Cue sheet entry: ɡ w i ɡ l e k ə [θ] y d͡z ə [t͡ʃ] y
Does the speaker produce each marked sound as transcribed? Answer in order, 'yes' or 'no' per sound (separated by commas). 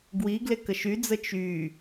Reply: no, yes